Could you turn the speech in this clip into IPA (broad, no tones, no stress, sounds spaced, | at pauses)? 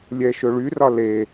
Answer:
lʲ ɛ ʃ ɵ ɭ y r ɒ l e